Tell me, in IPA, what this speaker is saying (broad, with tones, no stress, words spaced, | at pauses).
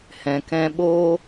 hɛ̃˨kɛ̃˧ ɓoː˦